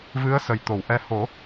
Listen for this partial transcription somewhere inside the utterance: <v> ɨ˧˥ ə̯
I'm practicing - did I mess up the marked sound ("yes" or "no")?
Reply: no